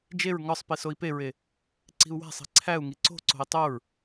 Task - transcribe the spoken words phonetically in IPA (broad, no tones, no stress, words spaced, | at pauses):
d͡ʒeɹ ŋɒsˤ pisoi̯peɹe | ǀi̤u̯wæ̤sˤi̤ ǀʰæu̯ŋi ǀo̤ǀo̤i̯ tˤoɹ